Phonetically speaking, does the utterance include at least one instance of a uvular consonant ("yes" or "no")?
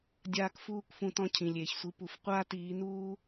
yes